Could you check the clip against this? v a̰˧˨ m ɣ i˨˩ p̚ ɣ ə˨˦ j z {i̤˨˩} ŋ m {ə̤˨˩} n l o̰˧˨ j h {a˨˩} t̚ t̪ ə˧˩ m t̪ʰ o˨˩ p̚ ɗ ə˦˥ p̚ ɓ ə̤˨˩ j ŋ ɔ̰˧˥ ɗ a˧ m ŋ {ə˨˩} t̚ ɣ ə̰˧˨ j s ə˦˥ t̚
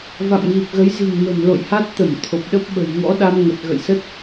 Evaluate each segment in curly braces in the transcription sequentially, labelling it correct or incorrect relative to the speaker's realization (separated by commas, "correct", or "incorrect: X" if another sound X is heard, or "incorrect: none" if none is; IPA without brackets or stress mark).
correct, correct, incorrect: a˦˥, correct